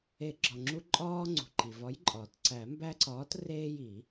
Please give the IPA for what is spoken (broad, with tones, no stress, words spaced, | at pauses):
e˨˩˦ ɡ͡ǁɒ˩ŋ͡ǁu˦ ǃʼɒː˦ ŋ͡ǀṳ˩ǃi˩vɒ˨˥jǃʼɒː˩t ǀæ˨˩˦mbæ˦ ǀɒː˨˥treː˦ji˨˩˦